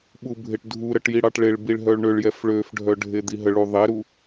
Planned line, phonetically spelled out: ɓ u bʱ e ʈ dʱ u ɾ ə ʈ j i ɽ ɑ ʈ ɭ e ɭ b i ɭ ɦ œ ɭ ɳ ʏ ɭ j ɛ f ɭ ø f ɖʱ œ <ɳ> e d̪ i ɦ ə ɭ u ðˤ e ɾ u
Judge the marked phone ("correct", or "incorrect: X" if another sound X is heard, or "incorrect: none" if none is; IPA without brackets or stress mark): incorrect: ɖʱ